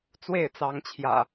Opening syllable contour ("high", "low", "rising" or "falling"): falling